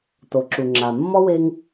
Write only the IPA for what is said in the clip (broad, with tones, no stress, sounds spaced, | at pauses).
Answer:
t o˩ ǁ u˩ ŋ͡ǁ a˩ mː ɔ˥ w e˥ ŋ